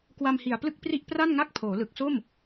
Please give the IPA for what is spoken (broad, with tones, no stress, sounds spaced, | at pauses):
k w a˧ m h i˨˩ a̯ p l ɯ˥˩ k̚ p r i˥˩ ʔ p r a˥˩ n ŋ a˥˩ k̚ pʰ oː˩˦ l ɯ˨˩ k̚ s o˥˩ m